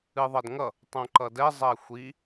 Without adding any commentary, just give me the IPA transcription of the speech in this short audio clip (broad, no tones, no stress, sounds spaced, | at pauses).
ɨ ðˤ ʌ d ŋ ʌ | tˤ õ ǃ ʌ d ɛ zˤ ɛ xʷ i